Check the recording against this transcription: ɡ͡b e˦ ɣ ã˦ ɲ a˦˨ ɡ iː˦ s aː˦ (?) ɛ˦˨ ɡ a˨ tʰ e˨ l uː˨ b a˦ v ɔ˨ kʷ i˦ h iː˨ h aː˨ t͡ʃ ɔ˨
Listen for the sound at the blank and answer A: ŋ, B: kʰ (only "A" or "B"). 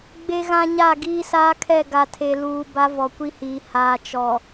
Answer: B